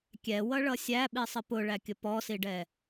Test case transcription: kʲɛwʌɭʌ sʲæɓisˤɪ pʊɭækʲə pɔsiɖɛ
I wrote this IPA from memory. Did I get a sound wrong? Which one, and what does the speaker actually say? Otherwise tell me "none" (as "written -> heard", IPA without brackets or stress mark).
none